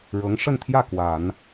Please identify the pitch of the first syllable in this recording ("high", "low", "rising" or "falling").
rising